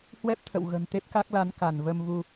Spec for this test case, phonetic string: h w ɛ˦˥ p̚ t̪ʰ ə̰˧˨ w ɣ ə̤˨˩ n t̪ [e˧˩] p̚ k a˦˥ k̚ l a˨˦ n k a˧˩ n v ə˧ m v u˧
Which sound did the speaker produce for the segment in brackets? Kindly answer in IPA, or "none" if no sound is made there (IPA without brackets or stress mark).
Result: e˦˥